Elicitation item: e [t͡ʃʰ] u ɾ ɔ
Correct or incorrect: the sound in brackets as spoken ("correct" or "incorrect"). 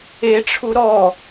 incorrect